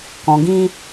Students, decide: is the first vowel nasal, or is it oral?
nasal